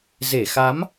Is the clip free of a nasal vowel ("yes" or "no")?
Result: yes